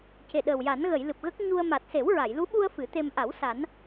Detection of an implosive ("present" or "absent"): present